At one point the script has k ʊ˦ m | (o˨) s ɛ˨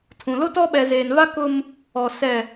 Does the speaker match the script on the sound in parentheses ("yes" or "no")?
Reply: no